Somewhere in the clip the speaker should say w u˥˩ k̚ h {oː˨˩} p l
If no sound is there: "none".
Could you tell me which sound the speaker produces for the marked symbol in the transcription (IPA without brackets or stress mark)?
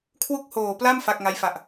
oː˨˩